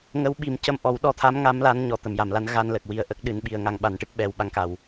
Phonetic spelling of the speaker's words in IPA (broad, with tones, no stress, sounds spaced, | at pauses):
ŋ ə˧˥ w ɓ i˨˩ m c ə˧ m ʔ ɔ˨˩˦ w ɗ ɔ˧˥ t̪ʰ a˧˥ m ŋ a˧˥ m l a˧˥ n ɲ ɔ˨˩ t̪ ə˨˩˨ m j a˨˩˨ m l a˧˥ n ɣ a˧ n l ə˨˩ k̚ w i˨˩ ə̯ ʔ ə˦˥ k̚ ɗ ɨ˧˥ n ɓ i˧ ə̯ ŋ a˧ ŋ ɓ a˨˩˦ n ʈ ɨ˦˥ k̚ ɓ ɛ˧ w ɓ a˧˥ ŋ k a˨˩ w